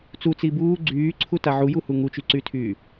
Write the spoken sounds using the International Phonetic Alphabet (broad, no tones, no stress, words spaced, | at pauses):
t͡sut͡si buː ɡ͡ǀyːǀʰuta ʕujuhu ŋut͡ʃyǀytʰyː